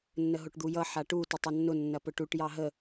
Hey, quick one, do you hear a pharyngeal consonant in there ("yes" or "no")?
yes